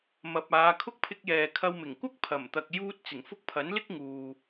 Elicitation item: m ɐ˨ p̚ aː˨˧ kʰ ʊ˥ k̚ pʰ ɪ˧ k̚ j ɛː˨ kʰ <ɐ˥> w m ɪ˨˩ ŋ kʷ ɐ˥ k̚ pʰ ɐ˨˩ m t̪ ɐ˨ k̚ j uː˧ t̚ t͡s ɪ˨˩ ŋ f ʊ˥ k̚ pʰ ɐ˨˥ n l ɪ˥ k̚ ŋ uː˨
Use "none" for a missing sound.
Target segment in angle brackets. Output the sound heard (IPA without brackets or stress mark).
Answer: ɐ˧